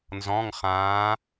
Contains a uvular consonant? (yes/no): yes